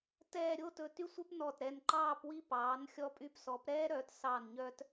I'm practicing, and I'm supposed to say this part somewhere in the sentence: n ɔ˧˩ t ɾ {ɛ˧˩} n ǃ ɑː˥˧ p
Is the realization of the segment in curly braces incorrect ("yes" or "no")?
no